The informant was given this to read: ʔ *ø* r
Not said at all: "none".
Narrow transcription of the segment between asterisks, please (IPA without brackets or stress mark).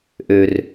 ø